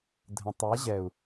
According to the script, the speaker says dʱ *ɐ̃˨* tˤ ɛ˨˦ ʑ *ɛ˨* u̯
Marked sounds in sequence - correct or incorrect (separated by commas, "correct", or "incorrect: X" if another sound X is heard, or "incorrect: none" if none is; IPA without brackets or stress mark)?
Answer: incorrect: ə̃˨, correct